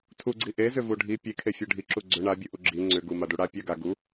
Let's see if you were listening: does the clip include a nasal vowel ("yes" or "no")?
no